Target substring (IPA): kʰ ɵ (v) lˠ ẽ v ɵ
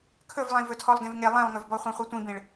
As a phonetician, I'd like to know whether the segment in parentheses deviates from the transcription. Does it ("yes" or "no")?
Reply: no